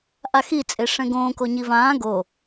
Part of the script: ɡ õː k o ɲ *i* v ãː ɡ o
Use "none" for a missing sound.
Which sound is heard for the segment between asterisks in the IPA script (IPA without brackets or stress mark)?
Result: i